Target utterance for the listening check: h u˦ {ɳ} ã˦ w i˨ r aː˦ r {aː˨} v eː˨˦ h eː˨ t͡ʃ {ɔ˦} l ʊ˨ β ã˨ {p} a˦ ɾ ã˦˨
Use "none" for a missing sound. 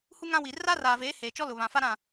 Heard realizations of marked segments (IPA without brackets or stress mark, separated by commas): ŋ, aː˨, ɔ˦, f